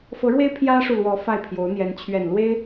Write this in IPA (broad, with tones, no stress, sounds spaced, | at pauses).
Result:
f ɤ˧˥ ɻ w e˥ ɪ̯ pʰ j ä˥ ʂ u˨ l w ɔ˧˥ f a˥˩ ɪ̯ pʰ j o˧˥ ʊ̯ n̪ j ɛ˧˥ n t͡ɕʰ ɥ ɛ˨˩ n l w e˥ ɪ̯